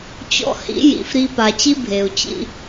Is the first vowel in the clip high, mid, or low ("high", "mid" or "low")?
mid